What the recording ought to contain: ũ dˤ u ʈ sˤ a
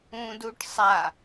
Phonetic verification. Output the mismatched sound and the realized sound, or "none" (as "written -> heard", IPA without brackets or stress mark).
dˤ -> d